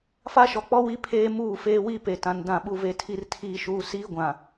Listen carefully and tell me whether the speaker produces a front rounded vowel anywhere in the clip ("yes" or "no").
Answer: no